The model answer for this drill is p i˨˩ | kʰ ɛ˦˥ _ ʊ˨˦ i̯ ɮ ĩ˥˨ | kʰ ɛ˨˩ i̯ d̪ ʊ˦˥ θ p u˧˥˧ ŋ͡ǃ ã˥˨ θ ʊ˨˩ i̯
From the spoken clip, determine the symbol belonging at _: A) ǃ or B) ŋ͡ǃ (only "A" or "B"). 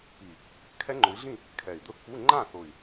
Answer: B